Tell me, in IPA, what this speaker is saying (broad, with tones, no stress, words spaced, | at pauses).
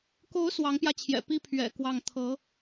ko˧˥ʊ̯ swɑ˧˥ŋpjä˧t͡ɕʰjɛ̰˨˩ pi˥ pʰɥɛ̰˨˩kwɑ˥˩ŋ t̪ʰɤ˧˥